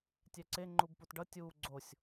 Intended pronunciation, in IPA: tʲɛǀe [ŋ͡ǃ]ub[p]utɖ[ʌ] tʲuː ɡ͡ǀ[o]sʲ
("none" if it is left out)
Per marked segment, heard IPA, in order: ŋ͡ǃ, p, ʌ, o

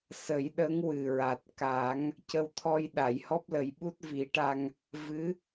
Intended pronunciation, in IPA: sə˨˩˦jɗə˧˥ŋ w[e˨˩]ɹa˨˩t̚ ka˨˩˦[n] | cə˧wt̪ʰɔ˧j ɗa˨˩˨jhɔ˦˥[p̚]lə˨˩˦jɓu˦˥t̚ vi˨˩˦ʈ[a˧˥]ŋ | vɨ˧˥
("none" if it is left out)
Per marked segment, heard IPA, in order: ɨ˨˩, ŋ, p̚, a˧

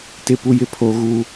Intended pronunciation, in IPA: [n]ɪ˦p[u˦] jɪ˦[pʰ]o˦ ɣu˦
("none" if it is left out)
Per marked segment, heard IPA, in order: t, u˦, pʰ

